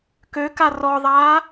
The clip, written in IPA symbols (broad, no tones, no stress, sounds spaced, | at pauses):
k ø k a r ɔ ðˤ aː